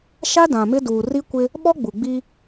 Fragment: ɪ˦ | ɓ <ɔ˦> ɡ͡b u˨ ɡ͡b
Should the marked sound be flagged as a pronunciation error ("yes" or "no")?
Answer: no